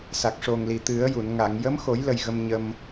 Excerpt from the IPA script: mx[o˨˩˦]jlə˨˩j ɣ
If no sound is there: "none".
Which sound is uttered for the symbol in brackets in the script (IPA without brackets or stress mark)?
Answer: o˨˩˦